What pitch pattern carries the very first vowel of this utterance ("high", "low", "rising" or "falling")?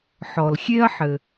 low